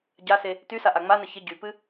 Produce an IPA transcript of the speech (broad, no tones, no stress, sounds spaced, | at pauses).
ɟ a s e | t y s a ʔ a ŋ͡m a n ə ç ɪ ɟ y p ɨ